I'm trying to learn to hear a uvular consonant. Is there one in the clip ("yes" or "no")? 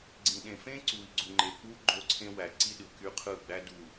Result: yes